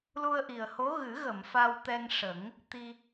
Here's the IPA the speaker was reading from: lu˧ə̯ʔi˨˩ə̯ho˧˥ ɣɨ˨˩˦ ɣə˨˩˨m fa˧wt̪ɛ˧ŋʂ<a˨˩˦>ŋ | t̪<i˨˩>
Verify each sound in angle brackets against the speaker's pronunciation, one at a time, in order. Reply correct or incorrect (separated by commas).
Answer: incorrect, incorrect